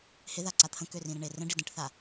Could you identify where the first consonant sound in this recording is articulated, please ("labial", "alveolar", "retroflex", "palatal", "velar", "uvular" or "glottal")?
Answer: glottal